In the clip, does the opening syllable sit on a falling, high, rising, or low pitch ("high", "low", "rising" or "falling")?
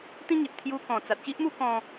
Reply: high